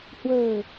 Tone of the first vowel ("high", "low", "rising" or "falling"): low